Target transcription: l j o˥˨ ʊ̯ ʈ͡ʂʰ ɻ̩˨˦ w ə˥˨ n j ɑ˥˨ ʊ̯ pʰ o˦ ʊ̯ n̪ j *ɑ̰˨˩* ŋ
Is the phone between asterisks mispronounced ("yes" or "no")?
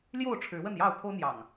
no